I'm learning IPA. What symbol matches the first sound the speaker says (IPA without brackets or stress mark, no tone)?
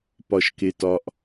p